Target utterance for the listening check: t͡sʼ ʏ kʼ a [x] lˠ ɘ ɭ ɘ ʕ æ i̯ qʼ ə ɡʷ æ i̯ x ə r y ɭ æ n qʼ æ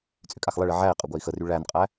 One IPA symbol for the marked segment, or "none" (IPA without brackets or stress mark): x